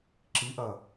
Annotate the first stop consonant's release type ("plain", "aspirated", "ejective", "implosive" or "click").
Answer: click